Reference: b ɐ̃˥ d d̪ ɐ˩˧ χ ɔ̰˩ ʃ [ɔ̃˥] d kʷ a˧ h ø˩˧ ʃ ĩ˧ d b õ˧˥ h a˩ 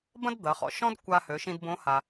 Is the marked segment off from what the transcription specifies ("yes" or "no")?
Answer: no